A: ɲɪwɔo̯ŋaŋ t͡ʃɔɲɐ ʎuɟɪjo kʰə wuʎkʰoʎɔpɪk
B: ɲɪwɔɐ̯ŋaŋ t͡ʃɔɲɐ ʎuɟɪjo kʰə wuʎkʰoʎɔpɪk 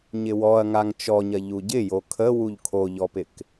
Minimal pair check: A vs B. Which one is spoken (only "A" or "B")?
B